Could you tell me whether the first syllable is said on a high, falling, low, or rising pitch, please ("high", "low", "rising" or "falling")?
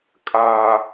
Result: low